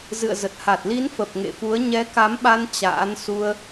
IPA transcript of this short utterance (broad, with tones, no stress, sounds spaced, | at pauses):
z ɨ̰˧˨ ə̯ z ə˨˩ t̚ h a˨˩ t̚ l i˨˦ n f ə˨˩ p̚ ŋ ḛ˧˨ f u˨˦ ə̯ ɲ ɛ˨˦ k a˨˦ m ɓ a˧ n t͡ɕ a̰ː˧˥ n s u˧ ə̯